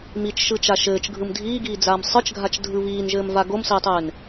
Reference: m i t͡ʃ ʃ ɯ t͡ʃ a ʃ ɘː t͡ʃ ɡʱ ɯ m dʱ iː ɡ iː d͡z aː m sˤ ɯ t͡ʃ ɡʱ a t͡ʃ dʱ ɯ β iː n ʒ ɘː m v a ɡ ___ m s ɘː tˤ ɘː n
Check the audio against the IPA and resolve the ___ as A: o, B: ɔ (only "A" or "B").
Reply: A